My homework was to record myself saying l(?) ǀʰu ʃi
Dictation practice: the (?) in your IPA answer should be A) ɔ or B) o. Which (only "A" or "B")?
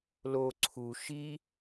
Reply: B